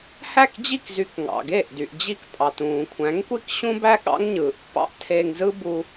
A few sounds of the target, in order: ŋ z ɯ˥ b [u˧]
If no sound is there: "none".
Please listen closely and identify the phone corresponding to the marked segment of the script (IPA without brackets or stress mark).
u˧